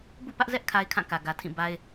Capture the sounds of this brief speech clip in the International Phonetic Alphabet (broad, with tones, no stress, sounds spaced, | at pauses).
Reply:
b ṵ˦˨ p ä˦ ʔ z ɛ˦ ʔ kʰ a˦ ɪ̯ kʰ ã˦˨ k ä˨ ɡ ä˨ tʰ ĩ˦˨ b a˦ ɪ̯